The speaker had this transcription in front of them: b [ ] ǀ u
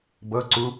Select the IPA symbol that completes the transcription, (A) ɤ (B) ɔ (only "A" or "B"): A